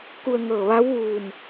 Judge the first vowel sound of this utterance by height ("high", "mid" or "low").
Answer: high